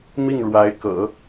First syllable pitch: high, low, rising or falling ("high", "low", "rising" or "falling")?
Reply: falling